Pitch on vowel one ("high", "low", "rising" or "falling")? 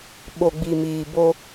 low